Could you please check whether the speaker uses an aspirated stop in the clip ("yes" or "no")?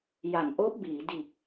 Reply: no